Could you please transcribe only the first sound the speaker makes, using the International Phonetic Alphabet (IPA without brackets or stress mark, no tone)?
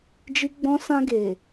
d͡ʒ